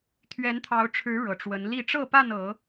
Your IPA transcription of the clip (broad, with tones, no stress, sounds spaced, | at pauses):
t̪ʰ ɥ ɛ˨˦ n t̪ʰ ɑ˨˦ ʊ̯ ʈ͡ʂʰ ɻ̩˨˦ ɻ ɤ˨˩ ʈ͡ʂ w ə˨˦ n l i˥˨ ʈ͡ʂ ɤ˥˨ p a˥˨ n ɤ˨˦